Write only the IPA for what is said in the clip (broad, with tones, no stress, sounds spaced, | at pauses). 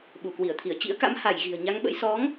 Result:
ɓ u˧˩ k w i˧˩ ə̯ t̪ʰ i˧˩ ə̯ t͡ɕ ḭ˧˥ ə̯ k a̰˧˥ m h a˧˩ j ɣ i̤˨˩ ə̯ ɲ a˨˦ ŋ ɓ ə̰˧˥ j s ɔ˨˦ ŋ